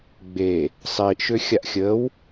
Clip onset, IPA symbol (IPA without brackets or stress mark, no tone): ɡ͡b